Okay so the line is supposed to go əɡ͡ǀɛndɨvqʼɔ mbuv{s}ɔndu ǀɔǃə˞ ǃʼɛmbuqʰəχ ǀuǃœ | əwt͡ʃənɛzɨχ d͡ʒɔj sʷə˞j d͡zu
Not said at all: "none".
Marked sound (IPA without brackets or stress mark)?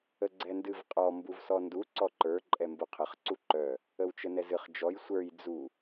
s